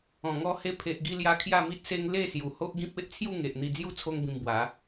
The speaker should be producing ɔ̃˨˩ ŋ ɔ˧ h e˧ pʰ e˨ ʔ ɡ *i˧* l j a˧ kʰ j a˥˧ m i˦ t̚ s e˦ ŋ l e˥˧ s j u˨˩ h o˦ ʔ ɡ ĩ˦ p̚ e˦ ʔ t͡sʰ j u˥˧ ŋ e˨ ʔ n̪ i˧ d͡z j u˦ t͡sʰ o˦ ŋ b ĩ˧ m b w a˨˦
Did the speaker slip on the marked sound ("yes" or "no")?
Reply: no